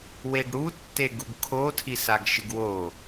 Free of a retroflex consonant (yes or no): no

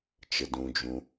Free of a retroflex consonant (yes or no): yes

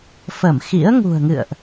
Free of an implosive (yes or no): yes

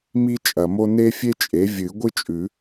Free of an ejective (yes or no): no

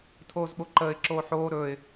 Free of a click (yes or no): no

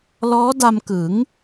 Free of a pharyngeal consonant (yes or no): yes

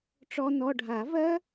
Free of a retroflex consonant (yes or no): no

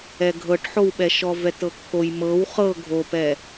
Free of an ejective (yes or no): yes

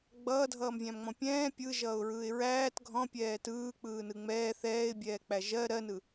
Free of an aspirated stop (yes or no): yes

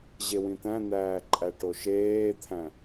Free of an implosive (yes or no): yes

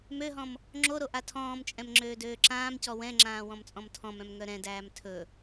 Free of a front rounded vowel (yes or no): no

